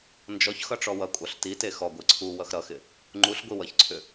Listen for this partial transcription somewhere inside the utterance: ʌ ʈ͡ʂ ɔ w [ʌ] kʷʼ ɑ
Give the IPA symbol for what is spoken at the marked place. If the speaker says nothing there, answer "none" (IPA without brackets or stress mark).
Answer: ʌ